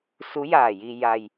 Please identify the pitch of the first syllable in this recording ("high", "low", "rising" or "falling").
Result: rising